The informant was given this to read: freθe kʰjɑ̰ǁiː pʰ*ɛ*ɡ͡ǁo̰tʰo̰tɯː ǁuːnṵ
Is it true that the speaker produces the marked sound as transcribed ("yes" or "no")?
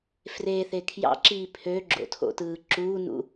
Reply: no